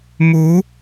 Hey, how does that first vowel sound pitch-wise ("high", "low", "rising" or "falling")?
rising